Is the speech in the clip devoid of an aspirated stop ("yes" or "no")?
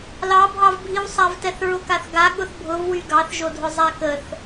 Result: yes